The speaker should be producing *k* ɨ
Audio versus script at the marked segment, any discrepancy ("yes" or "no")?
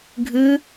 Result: yes